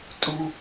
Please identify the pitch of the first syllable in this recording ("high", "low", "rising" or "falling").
low